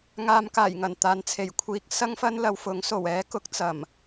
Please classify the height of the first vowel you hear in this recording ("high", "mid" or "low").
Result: low